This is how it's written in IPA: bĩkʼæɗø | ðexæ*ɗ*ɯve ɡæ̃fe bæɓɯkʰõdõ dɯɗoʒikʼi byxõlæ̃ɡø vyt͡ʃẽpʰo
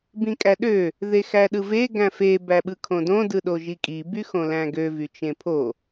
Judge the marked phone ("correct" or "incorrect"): correct